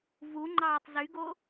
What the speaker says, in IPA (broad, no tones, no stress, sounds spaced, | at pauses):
v u ŋ͡ǃ ɑː tˤ z y ɡ o